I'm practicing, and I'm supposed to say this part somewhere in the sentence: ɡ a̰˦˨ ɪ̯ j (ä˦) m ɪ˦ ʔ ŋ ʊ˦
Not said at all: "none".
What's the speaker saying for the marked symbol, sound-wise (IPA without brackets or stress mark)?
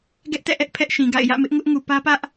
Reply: ä̰˦˨